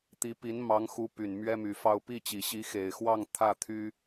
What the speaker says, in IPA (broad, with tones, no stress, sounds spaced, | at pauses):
t̪ i˧˥ p i˧˥ n m ɑ˧˥ ŋ x u˧˥ p y˨˩ n m ɥ ɛ˥ m y˨˩ f ɑ˥˧ ʊ̯ p i˥˩ t͡ɕ i˨˩ ɕ i˧˥ x e˨˩ ɪ̯ x w ɑ˥˧ ŋ t̪ʰ ä˥˩ t̪ʰ y˥